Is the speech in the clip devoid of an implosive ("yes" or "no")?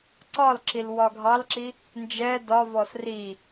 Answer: yes